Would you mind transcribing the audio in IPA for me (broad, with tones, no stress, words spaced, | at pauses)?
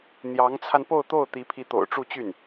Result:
n̪jɑ˧˥ŋt͡sʰa˧n po˥˧ʊ̯t̪o˥˩ʊ̯ t̪i˧˥pʰi˧˥t̪o̰˨˩ʊ̯ ʈ͡ʂu˥˧t͡ɕy˥˩n